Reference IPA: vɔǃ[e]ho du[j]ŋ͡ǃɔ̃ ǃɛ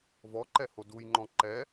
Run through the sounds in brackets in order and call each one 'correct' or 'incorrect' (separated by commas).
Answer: incorrect, correct